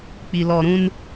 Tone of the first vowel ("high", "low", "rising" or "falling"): low